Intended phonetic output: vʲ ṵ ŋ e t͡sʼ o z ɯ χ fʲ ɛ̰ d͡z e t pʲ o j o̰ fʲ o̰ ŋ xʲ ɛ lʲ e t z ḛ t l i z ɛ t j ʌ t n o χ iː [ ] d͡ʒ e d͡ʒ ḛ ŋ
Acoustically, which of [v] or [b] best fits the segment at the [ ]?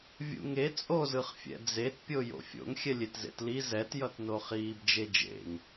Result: b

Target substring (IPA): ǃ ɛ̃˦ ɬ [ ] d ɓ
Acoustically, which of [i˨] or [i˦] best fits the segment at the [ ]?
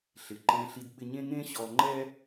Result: i˦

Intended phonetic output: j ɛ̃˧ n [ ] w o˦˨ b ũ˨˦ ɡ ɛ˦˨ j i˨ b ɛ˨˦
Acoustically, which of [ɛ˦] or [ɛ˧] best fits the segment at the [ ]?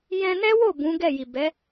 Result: ɛ˦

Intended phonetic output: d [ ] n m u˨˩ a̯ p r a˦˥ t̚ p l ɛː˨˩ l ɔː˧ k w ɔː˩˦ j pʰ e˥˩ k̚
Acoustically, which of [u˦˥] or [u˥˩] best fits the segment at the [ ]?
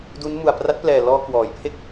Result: u˦˥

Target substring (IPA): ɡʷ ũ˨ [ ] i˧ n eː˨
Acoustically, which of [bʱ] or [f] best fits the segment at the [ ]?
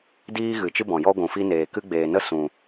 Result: f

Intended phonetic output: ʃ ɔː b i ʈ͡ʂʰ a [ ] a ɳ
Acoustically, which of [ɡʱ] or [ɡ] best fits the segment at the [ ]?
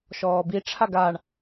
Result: ɡ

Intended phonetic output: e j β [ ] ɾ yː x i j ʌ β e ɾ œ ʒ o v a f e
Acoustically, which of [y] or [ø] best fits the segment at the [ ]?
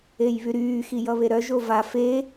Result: y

